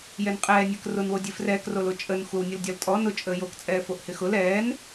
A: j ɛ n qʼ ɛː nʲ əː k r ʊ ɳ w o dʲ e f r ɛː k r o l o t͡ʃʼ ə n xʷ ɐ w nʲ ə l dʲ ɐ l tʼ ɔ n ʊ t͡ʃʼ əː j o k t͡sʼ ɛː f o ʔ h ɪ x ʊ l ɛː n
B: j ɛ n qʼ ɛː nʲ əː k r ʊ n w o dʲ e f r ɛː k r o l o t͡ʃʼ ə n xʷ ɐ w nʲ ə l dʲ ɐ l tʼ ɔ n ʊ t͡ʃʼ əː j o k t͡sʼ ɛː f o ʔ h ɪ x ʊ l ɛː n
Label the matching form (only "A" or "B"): B